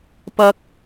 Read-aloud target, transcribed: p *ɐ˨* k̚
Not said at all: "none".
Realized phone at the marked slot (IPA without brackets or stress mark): ɐ˥